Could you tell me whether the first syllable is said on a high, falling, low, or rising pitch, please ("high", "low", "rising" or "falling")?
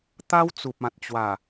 high